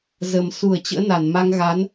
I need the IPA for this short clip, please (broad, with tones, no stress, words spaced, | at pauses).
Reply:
zə˨˩msu˧˩ə̯ t͡ɕə̰ː˧˥na˧˩n ma˧ŋɣa˨˦n